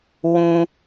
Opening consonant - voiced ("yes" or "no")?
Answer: yes